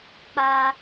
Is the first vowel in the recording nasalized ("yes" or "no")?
no